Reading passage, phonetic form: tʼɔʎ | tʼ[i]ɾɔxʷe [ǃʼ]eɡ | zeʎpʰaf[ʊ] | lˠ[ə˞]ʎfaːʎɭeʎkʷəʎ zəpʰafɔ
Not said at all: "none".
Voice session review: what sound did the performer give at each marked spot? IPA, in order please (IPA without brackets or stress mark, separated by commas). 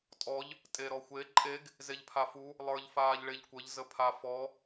e, ǃʼ, u, ə˞